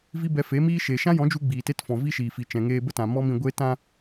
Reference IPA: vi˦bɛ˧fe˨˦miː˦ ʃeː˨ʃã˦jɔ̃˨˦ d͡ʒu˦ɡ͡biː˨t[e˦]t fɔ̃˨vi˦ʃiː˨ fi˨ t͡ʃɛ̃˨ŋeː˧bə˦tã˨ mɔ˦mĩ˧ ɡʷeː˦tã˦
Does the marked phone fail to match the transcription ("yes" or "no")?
no